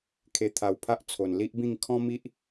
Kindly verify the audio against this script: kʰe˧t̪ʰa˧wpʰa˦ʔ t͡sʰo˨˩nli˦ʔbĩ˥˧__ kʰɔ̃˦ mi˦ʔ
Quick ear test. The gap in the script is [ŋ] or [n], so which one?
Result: ŋ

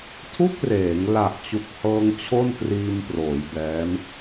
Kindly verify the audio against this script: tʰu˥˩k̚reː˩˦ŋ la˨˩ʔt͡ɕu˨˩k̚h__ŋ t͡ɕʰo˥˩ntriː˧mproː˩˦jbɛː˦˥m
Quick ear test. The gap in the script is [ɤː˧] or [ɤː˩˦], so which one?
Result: ɤː˧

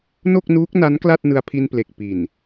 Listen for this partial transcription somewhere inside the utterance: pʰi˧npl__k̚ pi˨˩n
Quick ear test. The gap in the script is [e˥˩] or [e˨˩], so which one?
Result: e˨˩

